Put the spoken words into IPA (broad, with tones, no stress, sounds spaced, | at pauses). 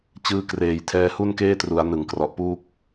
t͡ɕ ɯː˧ k r eː˨˩ j tʰ ɛː˧ h u˥˩ n k eː˥˩ t r u˩˦ a̯ n ɯ˨˩ ŋ k r ɔ˨˩ ʔ p uː˥˩ k̚